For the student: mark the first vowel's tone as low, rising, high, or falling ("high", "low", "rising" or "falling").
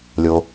low